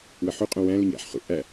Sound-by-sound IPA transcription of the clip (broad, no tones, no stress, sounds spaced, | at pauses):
w ɘ ħ u qʼ õ w æ̃ l ʏ ɲ æ̰ ħ χ ṵ ʔ æ